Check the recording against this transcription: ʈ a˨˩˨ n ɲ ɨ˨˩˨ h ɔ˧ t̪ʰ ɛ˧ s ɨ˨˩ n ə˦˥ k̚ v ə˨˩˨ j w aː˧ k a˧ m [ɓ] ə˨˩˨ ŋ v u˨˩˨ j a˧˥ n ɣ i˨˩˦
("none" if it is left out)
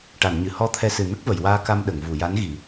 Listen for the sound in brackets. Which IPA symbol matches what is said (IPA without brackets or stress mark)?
ɗ